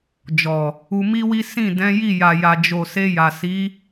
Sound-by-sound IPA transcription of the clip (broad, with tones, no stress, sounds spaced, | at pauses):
d͡ʒ ɔ˨ | u˧ m i˦ w i˦ s ĩ˦˨ d ɛ̃˨˦ j i˦˨ j a˨ j a˨ d͡ʒ o˨ s e˧ j a˨ s i˨˦